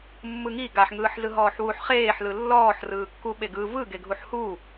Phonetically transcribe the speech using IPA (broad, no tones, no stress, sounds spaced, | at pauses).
mː ɯ ŋ i ɡ a ħ ŋ ɯː ħ z ɯ ɦ ɔː ħ w u ħ χ eː ħ l ɯ lː ɔː ħ r ɯː kː u ɓ e ɡ ɯ v ɯ ɡ e ɡʱ u ħ h u